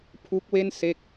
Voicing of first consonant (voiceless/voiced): voiceless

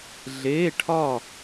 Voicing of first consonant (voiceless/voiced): voiced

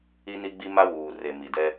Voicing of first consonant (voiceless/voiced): voiced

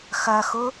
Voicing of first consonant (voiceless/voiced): voiceless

